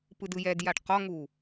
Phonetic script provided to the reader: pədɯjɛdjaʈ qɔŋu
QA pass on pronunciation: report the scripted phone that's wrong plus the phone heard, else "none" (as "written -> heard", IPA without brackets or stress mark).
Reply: ə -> ɯ